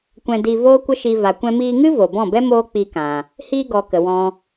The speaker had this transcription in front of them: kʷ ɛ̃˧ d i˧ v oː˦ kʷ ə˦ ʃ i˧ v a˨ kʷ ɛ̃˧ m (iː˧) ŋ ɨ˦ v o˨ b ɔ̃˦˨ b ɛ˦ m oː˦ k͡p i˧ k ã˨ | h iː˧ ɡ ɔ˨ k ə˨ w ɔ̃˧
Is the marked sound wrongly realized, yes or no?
no